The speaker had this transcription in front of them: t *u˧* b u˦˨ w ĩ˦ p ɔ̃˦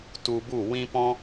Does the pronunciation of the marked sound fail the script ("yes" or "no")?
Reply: no